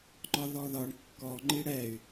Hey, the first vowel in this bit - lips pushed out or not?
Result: yes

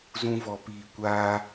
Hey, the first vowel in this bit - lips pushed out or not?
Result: yes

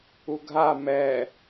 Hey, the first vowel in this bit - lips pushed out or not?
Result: yes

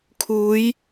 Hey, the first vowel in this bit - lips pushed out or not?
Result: yes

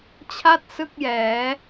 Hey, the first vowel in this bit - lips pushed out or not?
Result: no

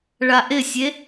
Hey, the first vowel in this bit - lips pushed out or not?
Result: no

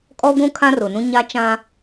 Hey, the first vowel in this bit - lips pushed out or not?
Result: yes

